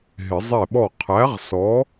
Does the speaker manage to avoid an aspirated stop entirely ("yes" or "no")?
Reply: no